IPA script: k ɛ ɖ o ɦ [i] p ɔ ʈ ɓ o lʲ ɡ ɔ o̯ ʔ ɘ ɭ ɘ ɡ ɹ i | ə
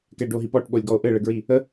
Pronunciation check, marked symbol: correct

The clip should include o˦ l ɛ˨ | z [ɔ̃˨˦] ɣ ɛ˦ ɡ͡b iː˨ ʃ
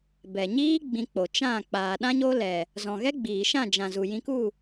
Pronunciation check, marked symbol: incorrect: ɔ̃˨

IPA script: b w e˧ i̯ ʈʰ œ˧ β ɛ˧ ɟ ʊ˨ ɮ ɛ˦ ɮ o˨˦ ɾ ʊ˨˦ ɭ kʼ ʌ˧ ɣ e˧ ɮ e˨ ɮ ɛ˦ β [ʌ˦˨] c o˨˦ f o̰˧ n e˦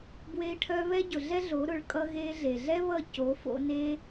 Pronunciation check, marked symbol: correct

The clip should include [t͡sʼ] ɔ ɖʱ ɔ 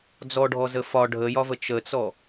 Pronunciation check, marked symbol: incorrect: d͡z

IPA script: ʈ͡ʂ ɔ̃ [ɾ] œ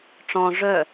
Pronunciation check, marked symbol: incorrect: ʐ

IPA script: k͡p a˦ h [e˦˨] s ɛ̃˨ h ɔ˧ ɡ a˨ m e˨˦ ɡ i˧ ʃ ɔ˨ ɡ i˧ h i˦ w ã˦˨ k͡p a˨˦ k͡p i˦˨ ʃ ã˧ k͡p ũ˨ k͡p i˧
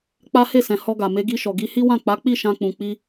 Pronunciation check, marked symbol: correct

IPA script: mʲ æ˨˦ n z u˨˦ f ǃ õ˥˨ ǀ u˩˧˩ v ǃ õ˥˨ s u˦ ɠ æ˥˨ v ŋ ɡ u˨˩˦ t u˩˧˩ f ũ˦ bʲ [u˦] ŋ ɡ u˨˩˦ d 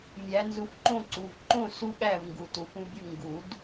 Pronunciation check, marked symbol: incorrect: u˥˨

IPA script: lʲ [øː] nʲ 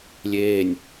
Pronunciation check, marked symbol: incorrect: eː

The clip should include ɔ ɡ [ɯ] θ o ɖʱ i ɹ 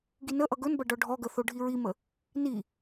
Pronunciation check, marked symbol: incorrect: ə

